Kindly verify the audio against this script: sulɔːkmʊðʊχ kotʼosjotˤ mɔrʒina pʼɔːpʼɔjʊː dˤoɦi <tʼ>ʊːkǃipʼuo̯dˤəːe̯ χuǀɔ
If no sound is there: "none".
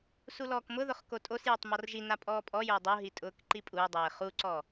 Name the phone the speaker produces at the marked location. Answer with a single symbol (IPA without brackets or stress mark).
tʼ